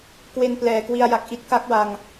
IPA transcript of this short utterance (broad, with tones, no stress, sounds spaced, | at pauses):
k w e˧ n p l ɛː˨˩ k w i˧ a̯ j a˨˩ k̚ ʔ i˦˥ t̚ k a˦˥ k̚ w a˧ ŋ